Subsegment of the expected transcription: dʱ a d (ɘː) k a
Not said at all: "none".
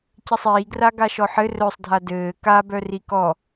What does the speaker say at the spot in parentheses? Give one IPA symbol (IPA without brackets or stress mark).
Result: ɘː